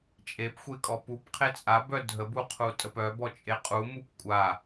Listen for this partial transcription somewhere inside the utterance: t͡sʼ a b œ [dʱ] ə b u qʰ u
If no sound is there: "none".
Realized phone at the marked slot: dʱ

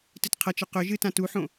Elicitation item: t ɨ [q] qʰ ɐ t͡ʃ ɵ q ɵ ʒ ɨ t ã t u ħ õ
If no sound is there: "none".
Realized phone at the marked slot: t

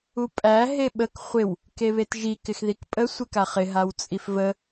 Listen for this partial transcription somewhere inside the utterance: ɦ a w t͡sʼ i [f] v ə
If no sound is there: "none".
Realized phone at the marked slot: f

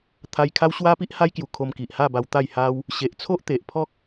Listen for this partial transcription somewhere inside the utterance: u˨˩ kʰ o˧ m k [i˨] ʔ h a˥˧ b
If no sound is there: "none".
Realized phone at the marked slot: i˨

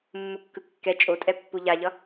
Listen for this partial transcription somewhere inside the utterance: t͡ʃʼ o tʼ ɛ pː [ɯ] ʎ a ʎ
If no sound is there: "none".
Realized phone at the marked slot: u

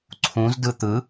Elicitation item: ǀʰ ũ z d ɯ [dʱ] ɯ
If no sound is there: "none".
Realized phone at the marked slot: t̪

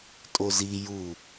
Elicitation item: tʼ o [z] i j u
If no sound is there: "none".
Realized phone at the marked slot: z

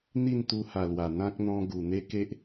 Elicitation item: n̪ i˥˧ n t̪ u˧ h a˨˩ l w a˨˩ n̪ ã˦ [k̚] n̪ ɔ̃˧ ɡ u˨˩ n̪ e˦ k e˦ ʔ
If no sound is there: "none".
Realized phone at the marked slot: k̚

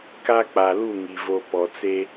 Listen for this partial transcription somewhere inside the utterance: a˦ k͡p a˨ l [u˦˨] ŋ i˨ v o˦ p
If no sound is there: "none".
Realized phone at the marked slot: u˦˨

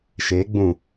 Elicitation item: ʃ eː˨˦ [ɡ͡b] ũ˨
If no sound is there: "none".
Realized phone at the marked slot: ɡ͡b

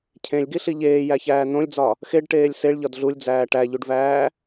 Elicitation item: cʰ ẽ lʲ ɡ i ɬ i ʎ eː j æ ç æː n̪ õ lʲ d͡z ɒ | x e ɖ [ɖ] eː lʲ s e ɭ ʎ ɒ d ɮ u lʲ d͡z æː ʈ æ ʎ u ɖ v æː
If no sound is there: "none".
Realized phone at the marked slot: ʈ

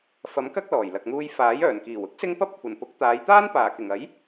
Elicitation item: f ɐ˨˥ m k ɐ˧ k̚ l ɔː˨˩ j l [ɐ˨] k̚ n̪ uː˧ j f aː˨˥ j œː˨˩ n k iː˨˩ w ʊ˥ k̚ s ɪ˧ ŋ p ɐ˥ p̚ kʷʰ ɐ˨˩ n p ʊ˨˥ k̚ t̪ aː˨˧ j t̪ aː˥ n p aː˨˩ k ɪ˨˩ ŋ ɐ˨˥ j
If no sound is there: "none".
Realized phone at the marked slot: ɐ˨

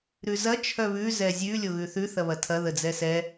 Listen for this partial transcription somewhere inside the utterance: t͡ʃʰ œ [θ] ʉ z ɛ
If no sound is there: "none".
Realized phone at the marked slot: β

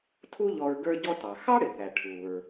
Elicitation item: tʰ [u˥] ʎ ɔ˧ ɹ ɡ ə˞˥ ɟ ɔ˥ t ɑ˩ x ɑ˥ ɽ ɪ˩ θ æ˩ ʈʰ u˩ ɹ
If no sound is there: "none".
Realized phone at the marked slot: u˥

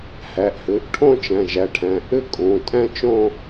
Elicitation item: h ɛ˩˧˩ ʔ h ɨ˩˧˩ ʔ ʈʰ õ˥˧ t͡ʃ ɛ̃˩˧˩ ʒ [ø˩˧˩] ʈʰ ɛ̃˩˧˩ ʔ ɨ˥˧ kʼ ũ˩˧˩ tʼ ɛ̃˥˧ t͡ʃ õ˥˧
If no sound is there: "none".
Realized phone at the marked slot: ɛ˩˧˩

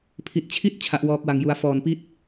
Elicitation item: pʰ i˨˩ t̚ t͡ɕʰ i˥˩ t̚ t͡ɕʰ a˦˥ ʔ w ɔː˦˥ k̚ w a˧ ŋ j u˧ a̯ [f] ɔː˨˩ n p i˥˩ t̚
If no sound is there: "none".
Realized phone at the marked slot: f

